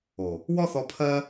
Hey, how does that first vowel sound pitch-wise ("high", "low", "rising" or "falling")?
low